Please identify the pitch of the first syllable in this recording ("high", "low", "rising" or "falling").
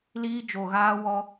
high